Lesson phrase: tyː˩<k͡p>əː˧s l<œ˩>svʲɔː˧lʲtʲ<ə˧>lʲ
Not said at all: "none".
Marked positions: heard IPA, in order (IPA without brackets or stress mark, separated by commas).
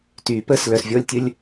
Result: p, œ˩, ə˧